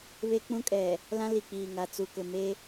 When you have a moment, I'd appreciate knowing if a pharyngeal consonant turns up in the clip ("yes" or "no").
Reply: no